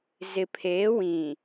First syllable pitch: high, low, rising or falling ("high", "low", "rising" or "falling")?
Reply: low